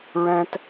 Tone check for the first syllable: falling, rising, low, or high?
low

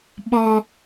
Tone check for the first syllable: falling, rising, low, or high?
high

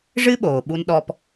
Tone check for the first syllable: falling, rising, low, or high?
high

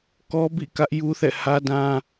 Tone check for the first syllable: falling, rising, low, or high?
high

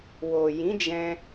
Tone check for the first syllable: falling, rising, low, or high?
low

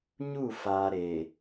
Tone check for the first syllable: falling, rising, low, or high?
falling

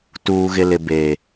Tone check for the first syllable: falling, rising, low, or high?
low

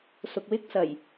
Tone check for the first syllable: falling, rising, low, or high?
low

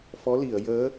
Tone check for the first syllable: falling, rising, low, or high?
rising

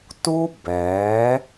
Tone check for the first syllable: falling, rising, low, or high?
high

